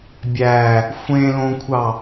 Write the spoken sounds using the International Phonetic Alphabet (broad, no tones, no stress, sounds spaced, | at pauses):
bʲ æ | xʷ ẽ l õ kʷʰ ɑ